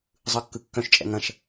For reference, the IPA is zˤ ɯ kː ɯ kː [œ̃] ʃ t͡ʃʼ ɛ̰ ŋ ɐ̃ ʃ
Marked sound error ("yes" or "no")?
no